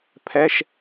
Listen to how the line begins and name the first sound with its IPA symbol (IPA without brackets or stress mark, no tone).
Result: pʰ